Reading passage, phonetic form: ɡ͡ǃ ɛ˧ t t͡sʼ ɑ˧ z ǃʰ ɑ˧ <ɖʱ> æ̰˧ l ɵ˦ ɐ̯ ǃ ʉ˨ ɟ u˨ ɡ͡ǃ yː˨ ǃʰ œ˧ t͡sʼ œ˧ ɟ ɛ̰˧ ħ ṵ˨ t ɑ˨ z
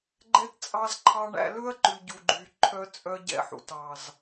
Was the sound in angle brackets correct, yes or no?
no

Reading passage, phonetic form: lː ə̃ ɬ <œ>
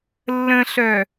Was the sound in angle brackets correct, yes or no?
yes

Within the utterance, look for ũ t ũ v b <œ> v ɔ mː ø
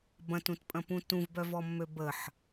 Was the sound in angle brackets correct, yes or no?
yes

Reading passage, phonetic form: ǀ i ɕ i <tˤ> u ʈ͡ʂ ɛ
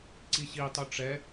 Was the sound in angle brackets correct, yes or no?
yes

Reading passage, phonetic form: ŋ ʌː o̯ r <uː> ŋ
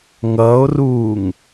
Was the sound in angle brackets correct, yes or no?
yes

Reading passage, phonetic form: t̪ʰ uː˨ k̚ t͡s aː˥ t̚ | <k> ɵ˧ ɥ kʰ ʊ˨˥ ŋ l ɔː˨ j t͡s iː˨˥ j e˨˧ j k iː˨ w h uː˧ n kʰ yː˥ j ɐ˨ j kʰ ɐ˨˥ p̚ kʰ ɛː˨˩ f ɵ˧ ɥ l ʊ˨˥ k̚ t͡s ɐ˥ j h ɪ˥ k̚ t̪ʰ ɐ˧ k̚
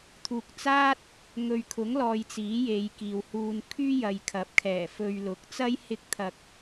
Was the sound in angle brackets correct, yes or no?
no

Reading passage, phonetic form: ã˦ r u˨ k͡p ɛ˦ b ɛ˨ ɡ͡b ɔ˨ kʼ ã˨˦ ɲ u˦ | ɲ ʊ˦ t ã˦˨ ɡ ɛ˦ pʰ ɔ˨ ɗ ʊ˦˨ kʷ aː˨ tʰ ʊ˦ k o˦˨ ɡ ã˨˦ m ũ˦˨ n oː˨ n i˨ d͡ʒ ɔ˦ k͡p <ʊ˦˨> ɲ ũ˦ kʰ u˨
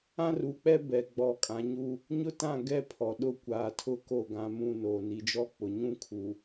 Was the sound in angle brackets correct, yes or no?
no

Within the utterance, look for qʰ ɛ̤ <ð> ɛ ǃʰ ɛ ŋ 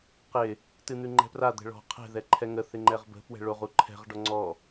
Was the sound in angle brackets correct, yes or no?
yes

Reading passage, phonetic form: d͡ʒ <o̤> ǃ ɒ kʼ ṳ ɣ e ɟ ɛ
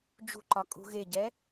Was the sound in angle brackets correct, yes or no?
no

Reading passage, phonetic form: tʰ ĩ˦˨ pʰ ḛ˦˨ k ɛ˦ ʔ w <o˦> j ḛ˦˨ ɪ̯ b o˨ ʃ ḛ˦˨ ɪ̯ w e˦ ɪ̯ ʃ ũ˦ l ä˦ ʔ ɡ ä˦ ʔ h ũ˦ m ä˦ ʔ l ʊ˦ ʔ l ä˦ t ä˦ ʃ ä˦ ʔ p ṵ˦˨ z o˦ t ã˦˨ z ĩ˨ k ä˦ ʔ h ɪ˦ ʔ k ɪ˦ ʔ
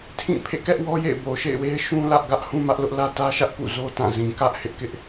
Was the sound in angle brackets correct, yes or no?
no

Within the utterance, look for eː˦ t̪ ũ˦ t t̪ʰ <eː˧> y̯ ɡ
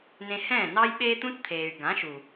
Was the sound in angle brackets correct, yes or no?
no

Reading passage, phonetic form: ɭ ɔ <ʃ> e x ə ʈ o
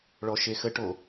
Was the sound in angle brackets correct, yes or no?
yes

